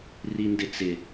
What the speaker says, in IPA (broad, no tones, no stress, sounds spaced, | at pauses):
r i n d ɪ t͡s ɪ